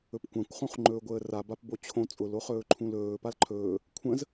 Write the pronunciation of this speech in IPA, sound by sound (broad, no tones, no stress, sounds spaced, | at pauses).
ɵ p kʷ ã kʷ χ ũ χ ŋ͡ǃ ɵː ɡʷ əː r a b a p b o t͡ɕʰ õ t͡sʼ ʊ l o χ ɵː ǃʰ ũ l ɵː p a l ǃʰ ɵː | kʷʰ ə̃ z